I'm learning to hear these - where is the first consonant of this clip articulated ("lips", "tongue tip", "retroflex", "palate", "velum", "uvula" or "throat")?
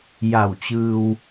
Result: palate